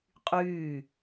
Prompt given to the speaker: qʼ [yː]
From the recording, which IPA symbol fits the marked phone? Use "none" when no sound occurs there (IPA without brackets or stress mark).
yː